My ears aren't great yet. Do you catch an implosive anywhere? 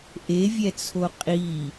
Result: no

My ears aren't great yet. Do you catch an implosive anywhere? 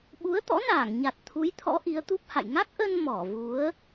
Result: yes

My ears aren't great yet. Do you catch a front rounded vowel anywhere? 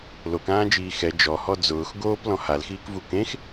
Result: no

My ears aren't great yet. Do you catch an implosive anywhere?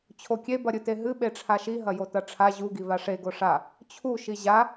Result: yes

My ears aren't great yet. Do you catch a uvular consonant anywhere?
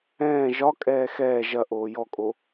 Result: no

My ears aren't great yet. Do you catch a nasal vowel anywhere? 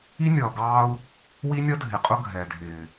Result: no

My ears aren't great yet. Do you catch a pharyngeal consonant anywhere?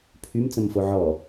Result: yes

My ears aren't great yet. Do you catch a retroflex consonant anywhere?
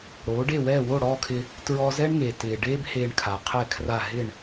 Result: yes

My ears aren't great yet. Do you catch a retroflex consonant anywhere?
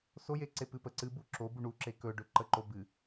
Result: yes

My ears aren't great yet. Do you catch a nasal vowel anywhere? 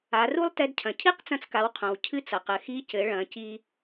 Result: yes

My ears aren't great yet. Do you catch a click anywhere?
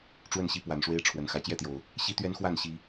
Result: no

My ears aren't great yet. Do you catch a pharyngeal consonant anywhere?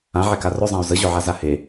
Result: yes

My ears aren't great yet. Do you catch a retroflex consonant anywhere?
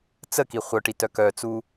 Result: yes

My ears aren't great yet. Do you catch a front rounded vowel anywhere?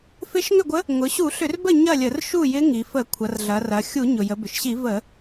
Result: yes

